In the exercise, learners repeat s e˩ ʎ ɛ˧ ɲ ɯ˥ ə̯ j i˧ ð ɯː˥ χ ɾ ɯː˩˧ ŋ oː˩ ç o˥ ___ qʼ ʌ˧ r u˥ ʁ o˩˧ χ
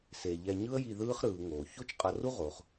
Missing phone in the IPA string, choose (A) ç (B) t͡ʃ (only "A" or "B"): B